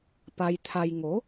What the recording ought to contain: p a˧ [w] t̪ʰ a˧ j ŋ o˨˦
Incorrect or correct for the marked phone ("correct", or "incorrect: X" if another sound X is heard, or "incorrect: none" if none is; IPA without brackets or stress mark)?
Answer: incorrect: j